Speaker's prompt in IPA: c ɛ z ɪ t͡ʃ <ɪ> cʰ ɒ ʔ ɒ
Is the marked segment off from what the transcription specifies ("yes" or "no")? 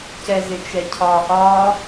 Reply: yes